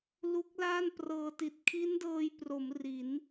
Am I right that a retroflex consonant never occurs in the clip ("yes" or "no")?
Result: yes